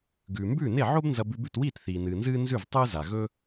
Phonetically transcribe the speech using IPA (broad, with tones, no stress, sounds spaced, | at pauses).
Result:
ɡ ʉː˩ m b ʉː˥˩ n e˥˩ ʕ o˥ b n z ɐ˧ b ʉ˧ b ʉ˥˩ t w iː˥˩ t θ iː˩ n ɨː˩ n z ɨː˥ n z ʉ˥˩ v tˤ ɨː˥ z a˩ ɣ ɵ˥